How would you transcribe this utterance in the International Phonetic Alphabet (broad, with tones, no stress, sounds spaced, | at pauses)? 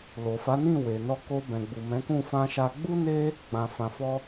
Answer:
l o˨ f a˨˦ n ĩ˦˨ w e˨ n ɔ˧ k o˧ b ɛ̃˨ ɡ͡b u˨ m ɛ̃˨˦ k ũ˦˨ f ã˧ ʃ a˧ ɡ͡b u˦ n e˦ | ɡ͡b ã˨ f ã˨ f ɔ˧